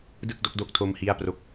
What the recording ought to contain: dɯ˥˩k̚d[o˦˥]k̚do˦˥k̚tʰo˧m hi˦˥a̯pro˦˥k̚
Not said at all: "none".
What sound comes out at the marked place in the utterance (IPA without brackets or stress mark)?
o˦˥